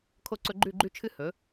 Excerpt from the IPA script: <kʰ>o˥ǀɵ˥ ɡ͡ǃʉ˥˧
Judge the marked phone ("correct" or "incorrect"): correct